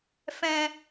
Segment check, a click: absent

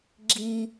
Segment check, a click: present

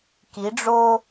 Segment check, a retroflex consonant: present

